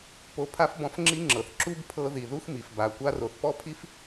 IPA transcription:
po˧pʰa˥fbɔ̃˧f ŋ͡ǁi˥ŋ͡ǁɤ˩θ ǁu˥bpʰɤ˧ ði˩ðu˥xmi˩f ba˩kʷa˥r o˩θpɔ˥pʰi˥f

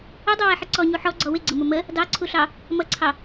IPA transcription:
ʊdˤuwɛħə ǀɔɲu ħɔɡ͡ǀɔ wɪɡ͡ǀəmʊ mə | dɑǀʰuɬɑ | mʌǀʰɑ

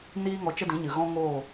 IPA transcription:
niː˦ŋɔ˧ t͡ʃə˦dĩ˨˦ɲɨ˨ ɣɔ̃˦ŋoː˦˨

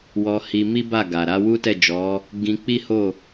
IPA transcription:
wɔ˧ hi˧ mi˦ba˦˨ ɡa˨ ɾa˧ wu˦tɛ˦˨d͡ʒɔ˨˦ | ɡĩ˧k͡pi˦ho˦˨

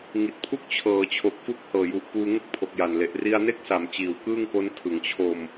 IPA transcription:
ŋi˨˩t̚pʰu˥˩k̚ t͡ɕʰɤː˩˦t͡ɕʰo˨˩k̚fu˦˥k̚hɤː˨˩ ju˨˩ʔ puː˧ ŋu˥˩k̚pʰo˨˩k̚ja˨˩nle˨˩ʔ ri˧a̯ne˥˩k̚sa˩˦m t͡ɕiː˩˦wkɯː˥˩ŋko˦˥n tʰɯ˩˦ŋt͡ɕʰo˧m

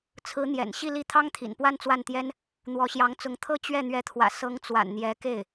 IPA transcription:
t͡sʰɹ̩˧˥n̪jɛ̰˨˩n ɕi˥˧li˥˩ t̪ʰɑ˥ŋt̪ʰḭ˨˩n pwa˥˧nt͡swa˥˩nt̪jɛ˥n | n̪wɔ˧˥ɕjɑ˧˥ŋt͡sʊ˧˥ŋt̪ʰɤ˥ t͡ɕɥɛ˥˩ n̪ɥɛ˧˥t̪ʰwä̰˨˩ sɤ˧˥ŋ t͡swa̰˨˩nn̪jɛ˧˥ke˥˩ɪ̯

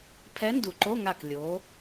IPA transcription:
pʰɛ˧˥ndu˩ǃo˧˥˧ŋa˧˩k lʲo˩˧

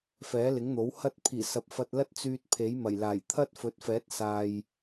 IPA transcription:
fɛː˨˥lɪ˨˥ŋn̪o˨˥w hɐ˧t̚pʰiː˨˩sɐ˨p̚ fɐ˧t̚lɐ˥t̚ t͡syː˧t̚pʰe˨˥jmɐ˨˩j laː˨˩j t̪ʰɐ˥t̚fɵ˨˥t̚fɛː˨˥t̚ saː˨j

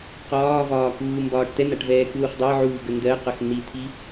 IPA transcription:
qɒːvɒːkuː mbɒːʈtɛn̪aʈvɛː kuːχdˤɛʕuːɡə ndɜqʌx n̪it̪ʰi

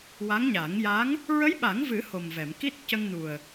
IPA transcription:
wa˧˥ŋɲa˨˩˦ŋja˧˥ŋ | ɹə˧˥jɓa˨˩˦ŋvɨ˨˩˦ ho˨˩mvɛ˨˩˨m ki˦˥t̚cə˧ŋnu˨˩ə̯

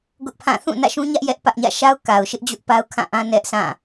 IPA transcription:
ɡʊ˦ʔpʰã˦˨ θũ˦˨nä̰˦˨ʃũ˦ɲä˦ʔ jɛ˦ʔpä˦ʔɲä̰˦˨ ʃa˦ʊ̯ka˨ʊ̯ʃɪ˦ʔ d͡ʑʊ˦ʔpa˦ʊ̯kʰã˦˨ ʔã˦ nɛ˦ʔsʰã˦˨

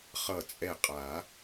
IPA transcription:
χʌ˧˩t͡sʼɛ˧˩qʼa˨˩˦

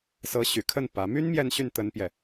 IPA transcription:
sɤ˧˥ ɕy˨˩kʰə˥˩n pä˧˥ my˥n mjɛ˥˧nɕy˥˩n t̪ə˥npjɛ˨

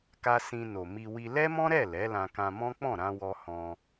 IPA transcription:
ka˧sĩ˧ no˨mi˧ wi˧ lɛ˦mɔ̃˦ɾɛ˦˨ lɛ˨˦lã˧ kã˧mɔ̃˦ k͡pɔ̃˦˨ɾã˧wɔ˧ hɔ̃˧

